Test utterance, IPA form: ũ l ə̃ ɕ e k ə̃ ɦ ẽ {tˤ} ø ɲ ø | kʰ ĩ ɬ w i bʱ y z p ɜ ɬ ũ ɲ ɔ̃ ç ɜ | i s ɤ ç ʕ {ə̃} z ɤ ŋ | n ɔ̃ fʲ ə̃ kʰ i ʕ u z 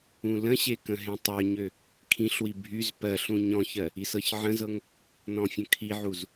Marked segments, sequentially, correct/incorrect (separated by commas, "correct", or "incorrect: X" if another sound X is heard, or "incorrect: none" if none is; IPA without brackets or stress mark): correct, correct